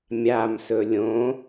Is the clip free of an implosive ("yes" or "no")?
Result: yes